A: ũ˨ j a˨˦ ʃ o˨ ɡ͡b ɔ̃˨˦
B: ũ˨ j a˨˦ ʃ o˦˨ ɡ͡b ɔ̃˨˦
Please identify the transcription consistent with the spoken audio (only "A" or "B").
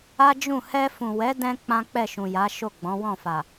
B